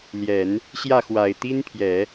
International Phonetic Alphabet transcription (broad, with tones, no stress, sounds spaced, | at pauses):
l j ɛ˨˩˦ n | ɕ j ä˥˩ x w a˨˩ ɪ̯ t̪ i˥ n pʰ j ɛ˨˩˦